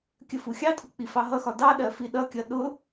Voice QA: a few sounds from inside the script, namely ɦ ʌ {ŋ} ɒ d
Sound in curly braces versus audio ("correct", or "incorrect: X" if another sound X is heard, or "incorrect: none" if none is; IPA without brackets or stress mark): incorrect: x